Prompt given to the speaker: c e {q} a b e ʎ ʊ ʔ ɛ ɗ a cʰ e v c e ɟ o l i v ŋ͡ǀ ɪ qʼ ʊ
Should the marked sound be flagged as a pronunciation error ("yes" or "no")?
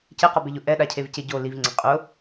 no